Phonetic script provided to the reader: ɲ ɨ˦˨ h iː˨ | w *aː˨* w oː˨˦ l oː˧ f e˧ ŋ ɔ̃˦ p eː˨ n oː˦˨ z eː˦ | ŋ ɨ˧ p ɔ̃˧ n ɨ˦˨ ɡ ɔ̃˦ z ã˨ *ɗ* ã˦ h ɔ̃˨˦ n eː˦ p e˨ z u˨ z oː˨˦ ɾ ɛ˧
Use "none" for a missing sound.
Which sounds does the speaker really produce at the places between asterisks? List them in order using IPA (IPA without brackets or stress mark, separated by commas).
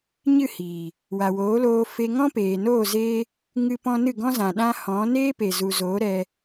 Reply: a˨, ɗ